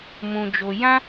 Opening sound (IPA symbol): m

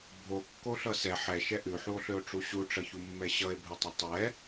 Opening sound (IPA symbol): bʱ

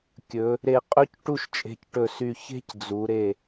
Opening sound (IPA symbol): kʲ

